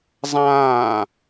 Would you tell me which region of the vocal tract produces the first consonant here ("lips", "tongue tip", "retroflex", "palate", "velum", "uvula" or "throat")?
tongue tip